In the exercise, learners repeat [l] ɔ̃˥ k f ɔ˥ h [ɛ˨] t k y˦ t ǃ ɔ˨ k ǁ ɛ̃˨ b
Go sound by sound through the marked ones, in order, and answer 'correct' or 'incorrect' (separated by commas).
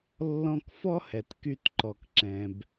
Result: incorrect, correct